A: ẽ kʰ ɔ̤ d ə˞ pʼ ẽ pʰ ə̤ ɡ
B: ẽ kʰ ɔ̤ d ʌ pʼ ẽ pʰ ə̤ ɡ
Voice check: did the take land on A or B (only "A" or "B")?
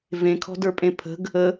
A